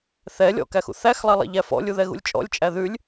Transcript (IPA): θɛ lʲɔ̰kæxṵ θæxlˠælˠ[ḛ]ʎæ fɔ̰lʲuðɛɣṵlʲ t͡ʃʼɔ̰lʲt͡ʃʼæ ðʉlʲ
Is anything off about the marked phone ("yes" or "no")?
yes